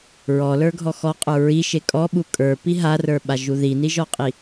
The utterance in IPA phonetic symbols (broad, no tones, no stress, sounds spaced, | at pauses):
ɹ ɔ l ə˞ ɡʱ ɔ x ɔ qʼ ə˞ ɹ i ʃ e kʼ ɔ ɓ u kʼ ə˞ p i ɦ a r ə˞ ɓ a ʒ u ð i n i ʒ ɔ qʼ i